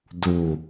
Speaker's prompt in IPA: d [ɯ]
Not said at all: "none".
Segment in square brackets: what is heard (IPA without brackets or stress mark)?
u